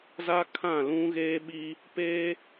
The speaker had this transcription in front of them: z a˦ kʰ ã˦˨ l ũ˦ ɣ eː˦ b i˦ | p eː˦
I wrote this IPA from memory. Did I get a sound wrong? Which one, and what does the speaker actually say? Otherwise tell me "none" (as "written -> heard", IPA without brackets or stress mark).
b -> ɓ